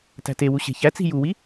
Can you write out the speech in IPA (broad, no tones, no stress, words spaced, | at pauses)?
tæ̤tewu ɕe̤çæt͡si̤ juwi